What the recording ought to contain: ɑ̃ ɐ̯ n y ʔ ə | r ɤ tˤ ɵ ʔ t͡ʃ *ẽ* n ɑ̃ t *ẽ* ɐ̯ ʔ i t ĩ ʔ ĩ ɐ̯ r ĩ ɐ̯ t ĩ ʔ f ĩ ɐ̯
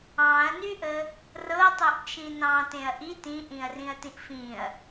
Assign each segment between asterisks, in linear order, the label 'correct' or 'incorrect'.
incorrect, correct

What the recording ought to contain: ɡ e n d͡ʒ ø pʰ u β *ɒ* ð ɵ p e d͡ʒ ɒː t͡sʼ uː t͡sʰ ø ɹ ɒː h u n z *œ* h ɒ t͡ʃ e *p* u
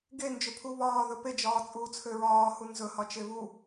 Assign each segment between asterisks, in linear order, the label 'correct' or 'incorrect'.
incorrect, incorrect, incorrect

